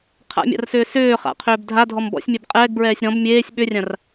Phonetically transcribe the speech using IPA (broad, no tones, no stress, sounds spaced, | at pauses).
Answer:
qʰ a̰ mʲ a̰ r s ʏː s ʏː χ a̰ qʰ ʏː b dʱ a dʱ ɔ m b ɔ̰ sʲ mʲ ɛ b qʼ ɛː ɡ b ɹ ɛː sʲ ɾ ɔ̃ b mʲ eː sʲ ɓ ʏ rʲ ã r